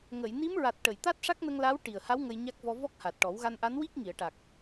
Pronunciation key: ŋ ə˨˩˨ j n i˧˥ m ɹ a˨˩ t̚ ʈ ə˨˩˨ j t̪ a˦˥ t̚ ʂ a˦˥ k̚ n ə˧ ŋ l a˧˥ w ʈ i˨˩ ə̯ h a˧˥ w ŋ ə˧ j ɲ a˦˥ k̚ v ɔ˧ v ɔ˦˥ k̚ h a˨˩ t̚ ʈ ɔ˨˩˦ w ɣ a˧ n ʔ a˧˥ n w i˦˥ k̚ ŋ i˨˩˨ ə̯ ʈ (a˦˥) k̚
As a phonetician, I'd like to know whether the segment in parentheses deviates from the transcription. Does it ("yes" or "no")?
yes